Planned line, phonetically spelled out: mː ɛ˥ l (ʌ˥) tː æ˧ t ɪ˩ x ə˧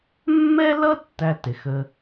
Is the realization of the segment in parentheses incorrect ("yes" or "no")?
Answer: no